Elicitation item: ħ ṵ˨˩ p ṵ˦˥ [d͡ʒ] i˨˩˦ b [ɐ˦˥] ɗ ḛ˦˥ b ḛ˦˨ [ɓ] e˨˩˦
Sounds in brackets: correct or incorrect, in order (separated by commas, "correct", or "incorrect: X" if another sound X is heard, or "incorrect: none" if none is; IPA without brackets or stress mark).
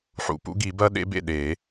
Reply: incorrect: ɡ, correct, incorrect: ɗ